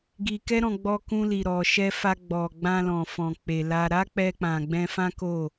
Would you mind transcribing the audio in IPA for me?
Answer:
ɡ i˧ k ɛ˦ ɾ ɔ̃˧ ɡ͡b ɔ˧ k ũ˧ l i˨ ɾ ɔ˨ ʃ ɛ˧ f a˧ ɡ͡b ɔ˨ ɡ͡b ã˧ l ɔ̃˨ f ɔ̃˨ k͡p e˨ l a˧ ɾ a˦ k͡p ɛ˧ k͡p ã˨ ɡ͡b ɛ̃˧ f ã˦ k o˦˨

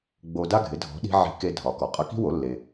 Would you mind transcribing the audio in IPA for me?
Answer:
ɡ͡b o˧ d a˥ ɡʱ ɪ˩˥ dʱ ɔ̤˩˥ ɗ i̤˧ ʕ i̤˧ k e˧ dʱ ɒ˩ k ɔ˩ qʼ ʌ˧ k i̤˥ w o˩˥ lː e˩

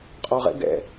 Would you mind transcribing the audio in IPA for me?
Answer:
qʼ ɔ ʁ ɛ̰ ɡ ɛ̰

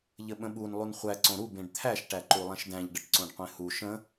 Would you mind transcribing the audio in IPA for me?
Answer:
ʎ ə ɓ ə̃ ɓ u n lˠ u n χʷ æ ǀ õ ɾ u b ẽ ɖ t̪ʰ æ ʃ ʈ æ ǃ u lˠ ɛ̃ ʃ d æ̃ ʎ ɖ ə ʈ ǀ õ ɖ qʷ ẽ h u ʃ ə̃

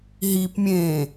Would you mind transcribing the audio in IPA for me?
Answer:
ɦ i p mʲ ẽː

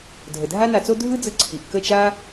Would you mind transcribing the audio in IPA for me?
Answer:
dʱ ə˨ dʱ a˦ n a˧ t͡s o˦ dʱ ɯ˦ d͡z ɯ˧ ǀʰ i˨ ʔ k ə˦˨ t͡ʃ a˦

